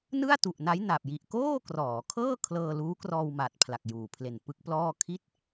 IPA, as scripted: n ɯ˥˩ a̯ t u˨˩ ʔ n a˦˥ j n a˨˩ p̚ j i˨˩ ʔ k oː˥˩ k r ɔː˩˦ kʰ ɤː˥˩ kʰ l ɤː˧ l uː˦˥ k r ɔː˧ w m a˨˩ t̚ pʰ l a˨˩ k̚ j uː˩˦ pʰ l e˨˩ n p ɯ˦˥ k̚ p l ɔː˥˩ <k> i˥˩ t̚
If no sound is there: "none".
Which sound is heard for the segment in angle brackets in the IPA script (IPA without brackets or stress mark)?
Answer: kʰ